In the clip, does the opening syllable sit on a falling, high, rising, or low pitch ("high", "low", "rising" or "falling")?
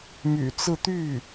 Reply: low